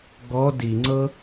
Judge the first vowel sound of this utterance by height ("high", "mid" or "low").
mid